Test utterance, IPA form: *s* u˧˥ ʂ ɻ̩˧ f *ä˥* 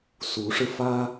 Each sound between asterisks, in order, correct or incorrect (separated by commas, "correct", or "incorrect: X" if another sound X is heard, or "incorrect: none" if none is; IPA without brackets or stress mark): correct, correct